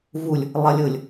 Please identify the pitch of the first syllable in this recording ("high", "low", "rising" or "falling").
low